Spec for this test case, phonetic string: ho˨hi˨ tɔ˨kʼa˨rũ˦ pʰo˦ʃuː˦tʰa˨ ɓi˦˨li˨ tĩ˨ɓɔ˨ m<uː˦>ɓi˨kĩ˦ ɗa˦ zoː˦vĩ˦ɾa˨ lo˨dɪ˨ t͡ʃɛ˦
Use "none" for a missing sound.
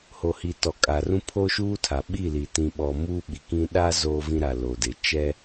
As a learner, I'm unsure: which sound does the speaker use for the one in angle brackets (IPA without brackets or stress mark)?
uː˦